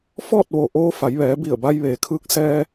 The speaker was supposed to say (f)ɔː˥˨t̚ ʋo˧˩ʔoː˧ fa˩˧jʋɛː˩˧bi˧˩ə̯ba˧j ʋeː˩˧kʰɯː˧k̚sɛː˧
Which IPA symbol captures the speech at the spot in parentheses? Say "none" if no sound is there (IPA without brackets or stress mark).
f